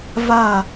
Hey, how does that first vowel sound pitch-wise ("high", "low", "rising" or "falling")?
falling